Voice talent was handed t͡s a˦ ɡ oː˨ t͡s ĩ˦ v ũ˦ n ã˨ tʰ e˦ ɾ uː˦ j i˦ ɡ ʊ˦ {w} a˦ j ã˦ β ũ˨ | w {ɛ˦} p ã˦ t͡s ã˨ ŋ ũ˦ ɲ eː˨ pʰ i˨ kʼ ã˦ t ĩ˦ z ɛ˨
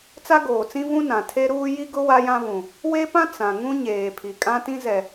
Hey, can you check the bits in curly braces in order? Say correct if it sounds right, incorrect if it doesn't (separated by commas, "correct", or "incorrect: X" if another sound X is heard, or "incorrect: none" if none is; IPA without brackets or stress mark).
correct, incorrect: e˦